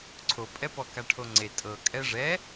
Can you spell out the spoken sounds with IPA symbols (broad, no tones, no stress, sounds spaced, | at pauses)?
ǀʰ o pʼ ɛ p ɔ k a ʈʰ o ŋ͡ǀ e tʼ ɤ kʼ ɛ ʐ ɛ